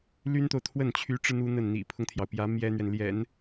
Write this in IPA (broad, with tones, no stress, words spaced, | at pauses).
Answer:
ly˥nt̪o˨ʊ̯t̪ʰwə˥˩n t͡ɕʰy˧˥ʈ͡ʂɻ̩˧ n̪u˥n̪ə˥˩n n̪ḭ˨˩pʰʊ˦ŋt̪ʰjɑ˩ʊ̯pjä˧˥ mjɛ˥n̪ɥɛ˨n ljɛ̰˨˩˦n